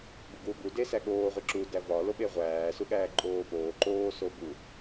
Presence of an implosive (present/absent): present